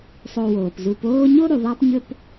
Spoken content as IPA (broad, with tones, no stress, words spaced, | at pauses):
sˤo˨woː˩pzu˨p oː˦ɲo˥ ɾu˩ðˤa˦pɲɵ˦p